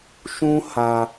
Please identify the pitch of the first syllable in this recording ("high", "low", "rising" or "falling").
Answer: high